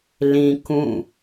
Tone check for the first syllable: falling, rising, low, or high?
low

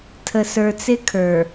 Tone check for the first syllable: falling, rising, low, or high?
low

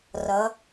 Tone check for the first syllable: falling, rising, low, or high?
rising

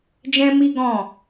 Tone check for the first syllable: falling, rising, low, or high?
high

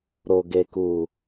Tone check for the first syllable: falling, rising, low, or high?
low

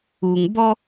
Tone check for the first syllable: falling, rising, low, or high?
low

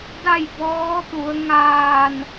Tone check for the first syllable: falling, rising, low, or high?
falling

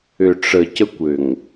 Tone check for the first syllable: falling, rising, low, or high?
low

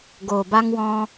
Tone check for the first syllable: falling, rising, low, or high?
low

